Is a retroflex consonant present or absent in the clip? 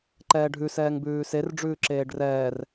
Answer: present